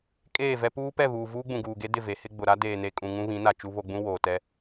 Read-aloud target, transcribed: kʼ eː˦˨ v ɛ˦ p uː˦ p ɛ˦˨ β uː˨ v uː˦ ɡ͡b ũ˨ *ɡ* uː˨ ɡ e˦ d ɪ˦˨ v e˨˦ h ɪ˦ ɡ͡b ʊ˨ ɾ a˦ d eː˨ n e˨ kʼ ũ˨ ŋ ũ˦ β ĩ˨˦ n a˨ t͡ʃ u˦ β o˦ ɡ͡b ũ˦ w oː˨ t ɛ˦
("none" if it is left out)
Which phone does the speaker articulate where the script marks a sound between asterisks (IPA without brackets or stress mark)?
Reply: ɡ